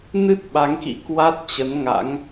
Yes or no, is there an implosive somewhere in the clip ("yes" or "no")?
yes